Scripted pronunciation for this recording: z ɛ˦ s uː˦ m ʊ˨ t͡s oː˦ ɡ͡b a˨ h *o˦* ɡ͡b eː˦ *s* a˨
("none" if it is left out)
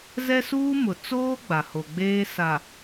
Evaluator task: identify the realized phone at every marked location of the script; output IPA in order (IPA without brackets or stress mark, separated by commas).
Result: o˨, s